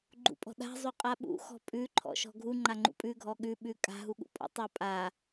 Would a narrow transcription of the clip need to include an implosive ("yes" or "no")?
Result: yes